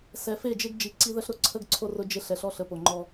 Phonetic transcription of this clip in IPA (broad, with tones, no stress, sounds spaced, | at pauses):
s ɛ˨ f e˦˨ d͡ʒ e˦ ɡ d͡ʒ i˨ ǀ i˦ ð ə˦ ɬ ɾ ʊ˨ ǀʰ ə˦ ɡ ǀʰ o˦ r ʊ˦ d͡ʒ e˦ ɬ ɛ˨ ɬ ɔ˦ ɬ ə˨ p o˨ ŋ͡ǃ ɔ˦